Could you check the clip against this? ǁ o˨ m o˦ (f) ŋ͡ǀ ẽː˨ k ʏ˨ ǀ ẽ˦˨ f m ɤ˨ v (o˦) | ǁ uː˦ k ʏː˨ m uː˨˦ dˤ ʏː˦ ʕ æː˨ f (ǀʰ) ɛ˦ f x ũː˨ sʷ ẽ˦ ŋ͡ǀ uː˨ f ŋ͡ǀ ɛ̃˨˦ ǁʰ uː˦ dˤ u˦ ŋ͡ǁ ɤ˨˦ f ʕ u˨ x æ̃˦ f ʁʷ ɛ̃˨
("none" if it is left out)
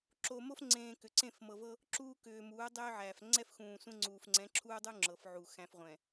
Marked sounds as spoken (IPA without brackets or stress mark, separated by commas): f, ɤ˦, ŋ͡ǀ